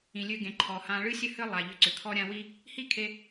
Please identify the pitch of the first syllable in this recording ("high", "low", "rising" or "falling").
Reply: low